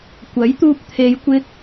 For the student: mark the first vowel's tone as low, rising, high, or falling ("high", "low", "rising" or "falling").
rising